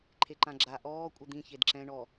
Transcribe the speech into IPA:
ǃʰeǃãɡ͡ǁa ʔɔː kʷʼɪd̪ĩ çedǁɛ̃ ɳɔ

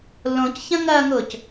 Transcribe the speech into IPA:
lõcçɐ̃ŋɐːŋʊːc

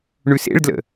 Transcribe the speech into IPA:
ɳʉsḛɭdlə̰

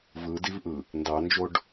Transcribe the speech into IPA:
vɯdivʔɯ | ndɑnd͡ʒoɖ

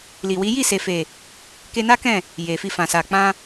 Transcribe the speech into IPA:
li˨wi˨˦ ji˦˨se˨fe˨ | ke˧na˦kɛ̃˦˨ | je˨fi˧fã˨sa˨ k͡pã˧

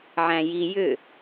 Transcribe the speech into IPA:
ʕæ̃ji jʏ

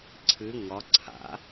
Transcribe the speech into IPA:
ǀʰɨ ŋɒ ǀʰa̰

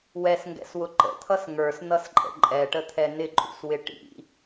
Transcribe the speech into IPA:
wɛsŋɡɛ̰swʊ ǃə̰t̪ʰʌs ŋə˞snʌsǃʼə̰ ǃʼɛʈət̪ʰɛ nɪǃʼṵswɪ ʈḭ

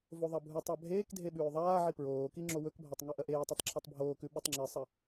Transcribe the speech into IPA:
voðˤɐbʱutˤa bʱeːk dʱeɓʉːðˤaːʕi pɹoːki ŋ͡ǁowɵkbʱatˤ ŋuʔɐʔeːtˤutˤ ǁʰɐtˤbʱoːkʉ ɓʉtˤŋ͡ǁɨsˤɐ

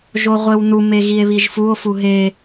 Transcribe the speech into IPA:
ʒoʁʷewnu meɣie̯βiʒfuo̯ fuɦe

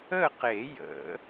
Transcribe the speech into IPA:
ə˥˨qe˨˩˦jə̰˨˩˦

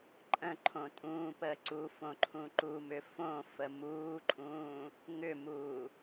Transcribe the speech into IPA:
ǃʼə̃ǃʰõ tʼũːpəː ǀufõ ǃʰũǃumʏ fõ fəmuːǃʼũː | ŋʏmuː

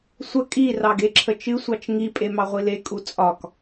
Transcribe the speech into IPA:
sʷə kʼi rɑɡeǁʰət͡ʃɨ sʷɑt͡ʃŋi pʼemɑʁʷile kʼut͡sʼɒk

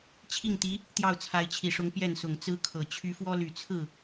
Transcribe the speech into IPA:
t͡ɕʰi˥˩ŋt̪i˧˥ | t̪jɑ˥˩ʊ̯t͡sʰa˧˥ɪ̯t͡ɕʰi˨˩ʂʊ˧˥ŋ pjɛ˥˩nsʊ˨˩ŋt͡sɹ̩˥kʰɤ˨˩ t͡ɕʰy˧˥fwɔ˥ly˨˩t͡sʰɹ̩˥˩

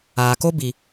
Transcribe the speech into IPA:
aː˨ ko˦bi˨

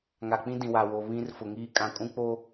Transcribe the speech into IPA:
ŋa˨k͡pĩ˦ dĩ˨wa˨wo˨ βĩ˦r fʊ˨ŋiː˦ kʼã˨kʼũ˦k͡po˦

